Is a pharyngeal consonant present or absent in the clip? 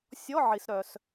present